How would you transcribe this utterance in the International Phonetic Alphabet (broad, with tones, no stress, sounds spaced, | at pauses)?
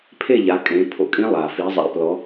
pʰ e˥˨ ʎ a˨˦ kʼ ẽ˨˦ pʰ o̰˨˩ kʼ ĩ˦˥ lˠ a˨˩ f i˨˦ zˤ a̰˨˦ p l ɔ˨˦